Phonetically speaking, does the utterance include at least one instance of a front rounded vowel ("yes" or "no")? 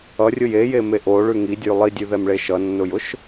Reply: no